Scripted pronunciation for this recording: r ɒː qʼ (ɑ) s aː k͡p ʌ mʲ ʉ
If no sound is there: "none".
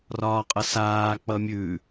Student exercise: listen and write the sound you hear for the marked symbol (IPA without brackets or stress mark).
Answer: ʌ